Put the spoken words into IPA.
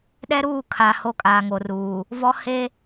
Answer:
ɗ ɛ˦ ɾ uː˦˨ kʰ a˨ h o˦ kʼ aː˨ ŋ o˨ r uː˨ | v ɔ˦ h e˦

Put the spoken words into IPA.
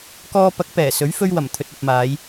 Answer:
k ɔː˧ p ɐ˨˥ k̚ p ɛː˨˩ s ɵ˨˥ ɥ f ɵ˧ ɥ w ɐ˨˩ m t̪ʰ ɵ˨ t̚ ɐ˨ p̚ m aː˨˧ j

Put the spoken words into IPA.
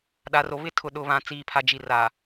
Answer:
ɗ a˨ r o˨ β ɪ˦˨ tʰ ʊ˨ ɗ ʊ˨ β ã˨ t͡s iː˨ pʰ a˨ d͡ʒ i˨ r a˨

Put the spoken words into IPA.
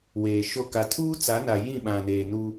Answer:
w eː˨ ʃ o˦˨ k a˨ tʰ uː˦ t͡s a˨˦ n a˨ j ĩ˦˨ ɓ ã˨ n eː˨ n u˦

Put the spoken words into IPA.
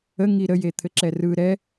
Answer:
ə ŋ i ɾ ə j e t̪ʰ ɘ ǁ ɛ r ɯ ɾ ɛ

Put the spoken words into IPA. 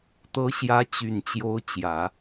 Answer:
t̪ ɤ˧˥ ɕ j ä˧˥ t͡ɕ y˨˩ n t͡ɕ j o˧˥ ʊ̯ t͡ɕ j ä˨˩˦

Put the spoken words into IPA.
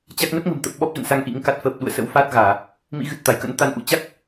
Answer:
t͡ɕ a˦˥ k̚ n ə˦˥ p̚ ŋ ə̤˨˩ m t̪ ə˨˩ p̚ ɓ ɔ˦˥ p̚ z ə̰˧˨ n s a˧ ŋ ʔ ḭ˧˥ ŋ k a˦˥ t̚ f əː˨˩ p̚ ɗ ṵ˧˨ ə̯ s ə̰˧˥ w f aː˦˥ t̚ ɣ aː˧˩˨ | m ḭ˧˥ ɣ ɨ˨˩ t̚ t̪ a˧˩ j k ə̰˧˥ n t̪ a˨˦ n ʔ ṵ˧˥ t͡ɕ a˦˥ k̚

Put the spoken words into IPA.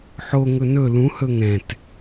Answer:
ħ o ŋ ɵ n ɵ l ũ h ɵ ŋ ɛ̃ t

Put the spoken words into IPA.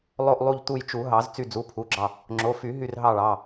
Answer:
lˠ o˦˨ ʔ lˠ u˦˨ ʎ t̪ u˦˨ j t͡ʃ u˨˩˦ ɦ ɑ˨˩˦ z t͡s y˦˨ d͡z u˩˧˩ pʰ u˩˧˩ ɡ͡ǁ ɑ˦˨ | ŋ͡ǁ o˩˧˩ f y˨˩˦ ɦ y˦˨ r ɦ ɑ˦˨ ɭ ɑ˩˧˩

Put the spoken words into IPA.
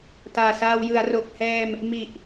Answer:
t aː˨˩ s aː˧ w j ɯ˩˦ a̯ r o˨˩ k̚ h ɛː˧ m | m i˨˩ ʔ

